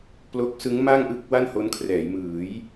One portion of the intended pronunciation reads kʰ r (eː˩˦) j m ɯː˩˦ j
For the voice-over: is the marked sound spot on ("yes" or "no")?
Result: no